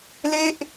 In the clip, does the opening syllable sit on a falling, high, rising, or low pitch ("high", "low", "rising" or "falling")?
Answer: falling